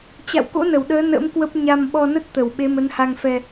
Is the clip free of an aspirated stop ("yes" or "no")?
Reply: yes